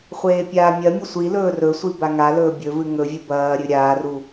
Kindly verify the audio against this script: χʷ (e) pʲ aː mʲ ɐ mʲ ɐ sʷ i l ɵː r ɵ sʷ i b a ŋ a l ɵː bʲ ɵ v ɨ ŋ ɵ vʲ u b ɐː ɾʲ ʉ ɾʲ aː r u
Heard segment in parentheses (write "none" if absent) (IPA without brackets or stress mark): eː